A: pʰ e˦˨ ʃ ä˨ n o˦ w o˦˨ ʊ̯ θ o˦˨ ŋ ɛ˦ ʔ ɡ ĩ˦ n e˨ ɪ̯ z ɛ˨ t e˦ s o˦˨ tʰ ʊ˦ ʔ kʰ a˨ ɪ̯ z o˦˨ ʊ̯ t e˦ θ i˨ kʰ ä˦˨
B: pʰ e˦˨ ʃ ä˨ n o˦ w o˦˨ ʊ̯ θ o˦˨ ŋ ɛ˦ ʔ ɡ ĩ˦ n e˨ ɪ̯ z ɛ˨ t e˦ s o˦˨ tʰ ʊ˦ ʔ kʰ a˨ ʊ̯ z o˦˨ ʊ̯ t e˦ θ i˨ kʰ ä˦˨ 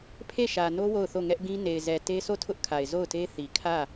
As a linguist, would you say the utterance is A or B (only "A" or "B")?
A